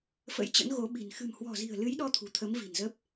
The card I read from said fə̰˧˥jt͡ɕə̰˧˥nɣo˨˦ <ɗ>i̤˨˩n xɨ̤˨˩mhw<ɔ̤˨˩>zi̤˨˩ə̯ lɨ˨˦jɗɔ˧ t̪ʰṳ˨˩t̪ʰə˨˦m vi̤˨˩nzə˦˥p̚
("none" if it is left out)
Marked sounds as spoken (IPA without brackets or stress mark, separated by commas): ɓ, ɔ̤˨˩